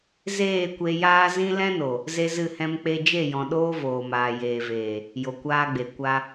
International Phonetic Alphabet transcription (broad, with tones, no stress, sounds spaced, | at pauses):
z eː˦˨ kʷ e˧ j aː˦ z ĩ˦ l ɛ̃˦ n o˨ | z e˦ z ɨ˦˨ h ɛ̃˦ m k͡p e˧ d͡ʒ e˦˨ j ɔ̃˨ ɗ oː˦ v oː˨ m aː˨ j eː˨ v eː˨ | j o˨ kʷ aː˦ ɡ͡b e˨ kʷ a˧